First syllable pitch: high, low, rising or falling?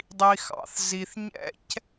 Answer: low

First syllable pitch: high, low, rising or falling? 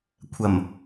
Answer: low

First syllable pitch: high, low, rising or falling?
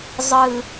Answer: low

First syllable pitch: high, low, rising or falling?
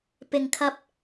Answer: low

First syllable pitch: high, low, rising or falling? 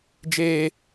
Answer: high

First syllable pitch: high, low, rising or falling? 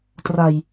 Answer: low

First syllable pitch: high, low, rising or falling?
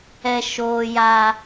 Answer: low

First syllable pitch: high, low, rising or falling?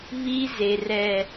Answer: high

